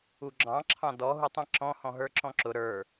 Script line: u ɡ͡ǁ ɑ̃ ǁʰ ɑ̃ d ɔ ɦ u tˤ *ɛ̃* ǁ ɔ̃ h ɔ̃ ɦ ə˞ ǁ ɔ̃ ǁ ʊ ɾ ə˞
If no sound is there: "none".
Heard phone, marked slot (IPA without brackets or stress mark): ɛ̃